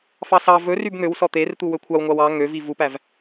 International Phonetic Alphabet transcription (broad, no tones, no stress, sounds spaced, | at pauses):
f ɑ s ɑ v ɵ r y b n̪ ø w s ɔ t̪ e r t̪ u w ɵ kʷʰ ɑ w ŋʷ ɑ w ɑ ŋ ø v i v u p æ v